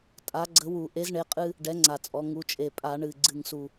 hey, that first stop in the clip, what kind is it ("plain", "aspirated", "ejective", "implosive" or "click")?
ejective